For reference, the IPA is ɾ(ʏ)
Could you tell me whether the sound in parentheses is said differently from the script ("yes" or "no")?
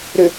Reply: no